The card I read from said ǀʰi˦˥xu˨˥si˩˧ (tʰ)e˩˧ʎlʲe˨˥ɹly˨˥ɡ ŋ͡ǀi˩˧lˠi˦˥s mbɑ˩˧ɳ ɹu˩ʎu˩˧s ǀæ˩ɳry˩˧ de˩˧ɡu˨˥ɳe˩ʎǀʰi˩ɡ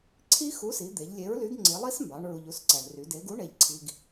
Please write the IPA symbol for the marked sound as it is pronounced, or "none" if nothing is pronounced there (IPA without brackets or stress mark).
d̪